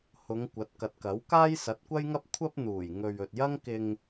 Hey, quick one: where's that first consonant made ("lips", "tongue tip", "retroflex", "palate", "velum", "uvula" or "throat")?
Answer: throat